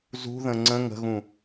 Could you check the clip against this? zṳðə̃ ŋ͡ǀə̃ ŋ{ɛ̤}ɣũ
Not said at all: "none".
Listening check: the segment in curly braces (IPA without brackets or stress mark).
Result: ə̤